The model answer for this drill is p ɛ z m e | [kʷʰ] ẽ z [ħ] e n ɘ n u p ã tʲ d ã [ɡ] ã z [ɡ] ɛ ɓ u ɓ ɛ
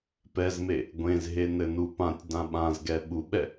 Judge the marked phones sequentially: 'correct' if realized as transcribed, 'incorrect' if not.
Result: incorrect, incorrect, incorrect, correct

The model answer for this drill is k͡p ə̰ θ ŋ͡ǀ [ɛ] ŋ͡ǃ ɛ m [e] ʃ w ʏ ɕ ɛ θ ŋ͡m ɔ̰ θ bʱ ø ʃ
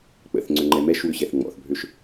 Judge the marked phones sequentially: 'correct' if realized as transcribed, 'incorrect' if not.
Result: incorrect, incorrect

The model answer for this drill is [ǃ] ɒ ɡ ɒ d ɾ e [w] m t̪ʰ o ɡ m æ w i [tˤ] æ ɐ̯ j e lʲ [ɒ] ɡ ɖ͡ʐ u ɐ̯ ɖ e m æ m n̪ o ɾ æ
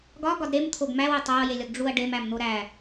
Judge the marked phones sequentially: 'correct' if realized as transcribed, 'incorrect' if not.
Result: incorrect, incorrect, correct, correct

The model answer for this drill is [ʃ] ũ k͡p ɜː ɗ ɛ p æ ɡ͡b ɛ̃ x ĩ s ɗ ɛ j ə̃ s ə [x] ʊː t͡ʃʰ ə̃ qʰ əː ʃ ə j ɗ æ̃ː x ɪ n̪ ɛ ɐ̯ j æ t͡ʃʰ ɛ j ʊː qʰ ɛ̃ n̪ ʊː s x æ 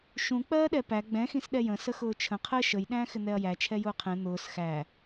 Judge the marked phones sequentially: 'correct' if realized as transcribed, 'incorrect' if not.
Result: correct, correct

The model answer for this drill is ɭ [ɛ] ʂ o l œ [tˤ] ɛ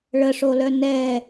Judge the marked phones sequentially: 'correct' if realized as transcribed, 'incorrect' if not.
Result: incorrect, incorrect

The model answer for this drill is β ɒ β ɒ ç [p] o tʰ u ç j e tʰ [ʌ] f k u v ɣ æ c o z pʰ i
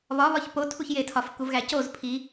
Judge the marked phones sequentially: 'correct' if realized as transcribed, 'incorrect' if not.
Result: correct, incorrect

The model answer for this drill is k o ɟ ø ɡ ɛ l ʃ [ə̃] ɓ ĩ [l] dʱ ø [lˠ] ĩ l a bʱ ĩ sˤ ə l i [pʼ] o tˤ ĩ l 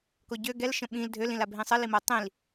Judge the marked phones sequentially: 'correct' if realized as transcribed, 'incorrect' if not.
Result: correct, correct, incorrect, incorrect

